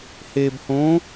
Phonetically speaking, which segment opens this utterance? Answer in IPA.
h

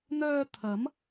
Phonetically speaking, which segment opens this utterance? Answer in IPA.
n̪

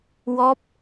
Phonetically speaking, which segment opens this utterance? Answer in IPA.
w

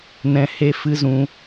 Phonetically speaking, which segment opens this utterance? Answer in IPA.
n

